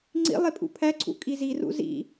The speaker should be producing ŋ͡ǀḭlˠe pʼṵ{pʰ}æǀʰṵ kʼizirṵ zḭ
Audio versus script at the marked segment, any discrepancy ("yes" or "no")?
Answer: no